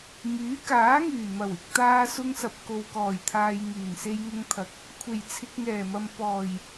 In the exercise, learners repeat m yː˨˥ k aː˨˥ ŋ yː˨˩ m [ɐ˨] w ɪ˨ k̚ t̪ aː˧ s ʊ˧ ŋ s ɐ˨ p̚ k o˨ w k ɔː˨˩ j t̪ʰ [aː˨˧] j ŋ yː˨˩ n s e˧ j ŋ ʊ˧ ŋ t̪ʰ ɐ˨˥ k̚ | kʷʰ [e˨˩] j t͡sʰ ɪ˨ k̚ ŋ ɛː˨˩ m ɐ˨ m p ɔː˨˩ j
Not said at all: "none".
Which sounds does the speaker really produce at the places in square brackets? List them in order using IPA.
ɐ˨˩, aː˨, e˨˩

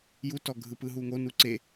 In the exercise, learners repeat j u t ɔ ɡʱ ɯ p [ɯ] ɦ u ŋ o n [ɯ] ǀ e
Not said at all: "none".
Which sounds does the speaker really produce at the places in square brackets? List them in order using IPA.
ɯ, u

